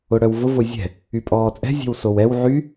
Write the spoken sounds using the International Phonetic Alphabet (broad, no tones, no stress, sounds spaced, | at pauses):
ʊ ɽ œ w v ʊ v ʊ zʲ ɛ̤ | y pʼ ɔː t͡sʼ ɛ̤ zʲ ɛ̤ w s o w ɛ w ʕ y